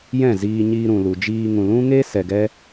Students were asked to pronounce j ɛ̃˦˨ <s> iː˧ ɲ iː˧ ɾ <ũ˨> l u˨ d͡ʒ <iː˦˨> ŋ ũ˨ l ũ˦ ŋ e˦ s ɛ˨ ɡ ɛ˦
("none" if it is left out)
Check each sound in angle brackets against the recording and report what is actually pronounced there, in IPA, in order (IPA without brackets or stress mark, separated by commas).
z, ũ˨, iː˧